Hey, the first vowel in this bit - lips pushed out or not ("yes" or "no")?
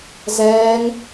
no